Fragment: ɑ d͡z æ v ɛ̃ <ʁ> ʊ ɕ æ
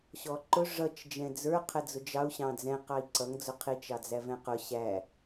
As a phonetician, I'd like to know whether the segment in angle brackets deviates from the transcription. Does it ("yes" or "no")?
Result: yes